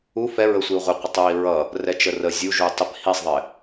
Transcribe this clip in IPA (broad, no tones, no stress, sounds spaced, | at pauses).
u f ɛ ɹ ə sʷ i u̯ ʁʷ ɪ qʷ ɪ tˤ ɹ i ɹ ʌ | r ɛ t͡ʃ ə r ə zʲ u ʒ u tˤ ɪ p h i sˤ ðˤ ɪ